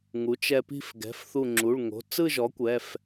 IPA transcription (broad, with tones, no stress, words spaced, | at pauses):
ŋu˩˥ t͡ʃɛ˧pi̤˥˧f ɡɛ̤˩˧˩fθu˧˩ ŋ͡ǁu˩˧˩ɭŋo̤˩˧˩ t͡sɯ˥˧ʒɔ˩˥ kʷɛ˩˧˩f